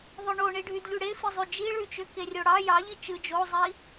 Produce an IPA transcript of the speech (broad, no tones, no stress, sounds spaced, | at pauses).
ðˤ ø ɳ o ɳ i ɖʱ y d ʎ y ɽ e f i zˤ y d͡ʒ i ɭ y t͡ʃ ø k e rʲ o ɽ ɑ j ɑ ʎ i t͡ʃ ɯ d͡ʒ o zˤ i